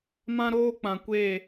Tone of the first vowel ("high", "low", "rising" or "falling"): high